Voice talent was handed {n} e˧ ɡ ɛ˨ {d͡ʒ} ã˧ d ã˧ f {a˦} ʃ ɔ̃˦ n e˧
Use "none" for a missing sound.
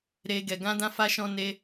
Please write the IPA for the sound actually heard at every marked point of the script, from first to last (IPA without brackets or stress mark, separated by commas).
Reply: ɾ, ɡ, a˦